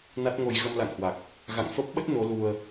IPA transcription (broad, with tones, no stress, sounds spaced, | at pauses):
n a˦˥ t̚ ŋ o˧ j ɣ ə˧ m l a̰˧˨ ŋ h w a˨˩ k̚ | ɣ a̰˧˨ ŋ f ə˦˥ p̚ ɓ ə˦˥ t̚ n o˨˦ l u˧ ə̯